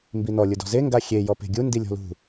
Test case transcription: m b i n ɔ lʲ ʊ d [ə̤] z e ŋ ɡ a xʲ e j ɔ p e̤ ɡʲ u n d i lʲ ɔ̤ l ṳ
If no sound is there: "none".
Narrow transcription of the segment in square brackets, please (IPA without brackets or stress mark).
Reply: ɔ̤